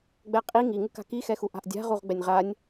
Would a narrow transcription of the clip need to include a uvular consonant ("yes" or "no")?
yes